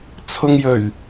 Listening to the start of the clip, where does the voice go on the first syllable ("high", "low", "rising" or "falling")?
low